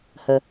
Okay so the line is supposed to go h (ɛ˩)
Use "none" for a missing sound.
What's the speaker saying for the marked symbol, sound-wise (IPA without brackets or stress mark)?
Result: ə˩